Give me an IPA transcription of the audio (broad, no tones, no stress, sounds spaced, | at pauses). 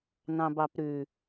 n ɑ̃ b ɑ p ɾ ʉ